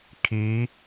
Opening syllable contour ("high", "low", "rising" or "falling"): rising